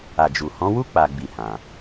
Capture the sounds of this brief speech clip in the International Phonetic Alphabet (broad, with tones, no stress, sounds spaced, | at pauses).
a˨ d͡ʒ u˨ h ɔ̃˨˦ w u˦ k͡p a˦ ɡ͡b i˦˨ h ã˧